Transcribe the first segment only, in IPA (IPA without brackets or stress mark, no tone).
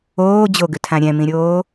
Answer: oː